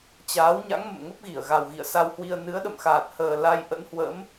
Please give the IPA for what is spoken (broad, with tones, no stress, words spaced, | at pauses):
t͡ɕaː˨˦wɲa̰˧˥ŋ mə̰˧˨mŋə˦˥p̚ɣi˧˩ə̯ɣa˨˩w ɣḭ˧˨ə̯sa˧whwi˧ə̯ nɨ˨˦ə̯ɗə̰˧˨mxaː˨˩t̚ həː˨˩ la˧j ʔə̰˧˥nhwə̰˧˥m